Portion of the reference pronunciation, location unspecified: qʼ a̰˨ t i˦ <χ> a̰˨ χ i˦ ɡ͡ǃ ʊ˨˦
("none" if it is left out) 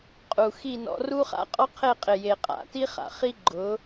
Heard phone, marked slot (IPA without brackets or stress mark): χ